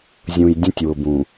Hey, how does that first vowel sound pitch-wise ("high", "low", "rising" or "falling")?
low